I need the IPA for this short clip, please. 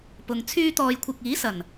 p ʊ˨ ŋ t͡sʰ yː˧ t̪ ɔː˨ j kʷʰ ɪ˨ k̚ iː˨˥ s ɐ˨˩ n

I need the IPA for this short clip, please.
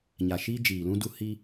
ɲ a˨ ʃ iː˦ d͡ʒ iː˨ l ũ˦ d u˦ h i˦

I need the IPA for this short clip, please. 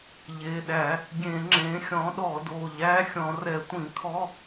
ʎ e˩˧˩ ɗ æ˧˩˧ | ɡʲ ẽ˧˩˧ ŋ͡ǁ ẽ˩˥ xʲ ɔ̃˩˥ ɗ ɔ˧˩˧ d o˩˧˩ ʎ æ˧˥˧ xʲ ɔ̃˧˩˧ r ɛ˧˩˧ tʷ ĩ˧˩˧ kʰ ɔ˧˥˧

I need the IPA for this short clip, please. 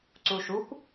ǀ u ʃ u kʷ

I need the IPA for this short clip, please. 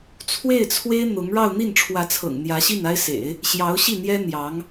t͡sʰ w e˥˩ ɪ̯ t͡sʰ w e˥ ɪ̯ n̪ ʊ˧˥ ŋ ɻ ɑ˥˧ ʊ̯ n̪ i˥˩ n ʈ͡ʂʰ w ä˧˥ t͡sʰ ɤ̰˨˩ ŋ n̪ j ä˧˥ ɕ i˥˩ n a˥ ɪ̯ s ḛ˨˩˦ ɪ̯ | ɕ j ɑ˧˥ ʊ̯ ɕ i˥˩ n̪ j ɛ˥ n̪ j ɑ˧˥ ŋ

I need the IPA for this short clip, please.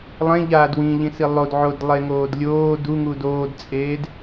lˠ ẽ ʎ aː d w ĩ ʎ ĩ s i lˠ o d ʕ o d lˠ e ŋ oː d lʲ oː d u ŋ u d oː d t͡sʼ eː d

